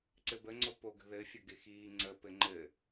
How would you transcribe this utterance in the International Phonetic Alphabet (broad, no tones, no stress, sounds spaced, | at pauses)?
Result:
ǀ ɘ b ə ŋ͡ǀ o p o ɡ ə̤ ð ɘ fʲ ə ɡ ɪ x iː ŋ͡ǀ ə p ɘ ŋ͡ǃ ɘ